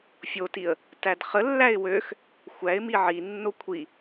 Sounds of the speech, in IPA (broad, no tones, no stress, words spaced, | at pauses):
fʲotiə̯ | tædχəlːæɪ̯ wøx | xʷæɪ̯mi ʕinːo kʷʰi